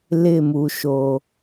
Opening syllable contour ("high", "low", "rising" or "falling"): falling